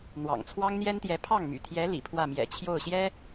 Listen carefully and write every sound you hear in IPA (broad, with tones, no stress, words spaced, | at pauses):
n̪wɑ̰˨˩ŋt͡sʰwɑ˥ŋn̪jɛ˥nt̪jɛ˧˥ pʰɑ˥˩ŋmy̰˨˩t̪ʰjɛ˧˥ lḭ˨˩pʰwä˥˩mjɛ̰˨˩ t͡ɕʰjo˥˩ʊ̯ɕjɛ˥